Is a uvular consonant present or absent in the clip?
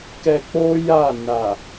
absent